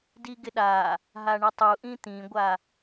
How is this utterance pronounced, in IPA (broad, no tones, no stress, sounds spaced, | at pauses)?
d i ɡ ɪ ɗ a | ɦ a ɳ ɪ tˤ u ʔ ĩ t̪ ĩ ɡʷ a